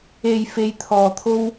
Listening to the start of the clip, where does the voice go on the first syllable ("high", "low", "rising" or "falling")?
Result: low